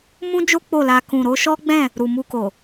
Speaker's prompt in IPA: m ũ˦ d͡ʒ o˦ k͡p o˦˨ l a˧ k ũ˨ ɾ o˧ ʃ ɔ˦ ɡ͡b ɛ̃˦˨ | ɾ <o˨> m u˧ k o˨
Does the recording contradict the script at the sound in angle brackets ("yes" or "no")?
yes